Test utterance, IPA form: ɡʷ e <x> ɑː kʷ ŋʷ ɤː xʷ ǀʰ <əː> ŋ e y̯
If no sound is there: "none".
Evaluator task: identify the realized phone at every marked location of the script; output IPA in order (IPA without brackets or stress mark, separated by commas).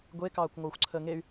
k, əː